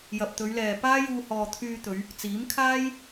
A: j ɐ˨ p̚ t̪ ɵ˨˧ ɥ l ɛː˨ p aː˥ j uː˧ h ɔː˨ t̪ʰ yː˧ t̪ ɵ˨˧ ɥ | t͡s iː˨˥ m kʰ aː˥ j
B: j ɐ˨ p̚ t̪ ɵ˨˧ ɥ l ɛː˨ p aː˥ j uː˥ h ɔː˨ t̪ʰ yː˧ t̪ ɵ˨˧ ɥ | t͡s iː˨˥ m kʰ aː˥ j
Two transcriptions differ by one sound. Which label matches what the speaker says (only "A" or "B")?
A